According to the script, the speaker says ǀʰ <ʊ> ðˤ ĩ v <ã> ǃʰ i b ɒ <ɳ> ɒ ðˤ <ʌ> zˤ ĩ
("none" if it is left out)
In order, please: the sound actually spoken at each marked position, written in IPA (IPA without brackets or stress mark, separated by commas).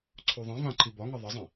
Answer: u, ã, ŋ, ʌ